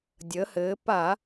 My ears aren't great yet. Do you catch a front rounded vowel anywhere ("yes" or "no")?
no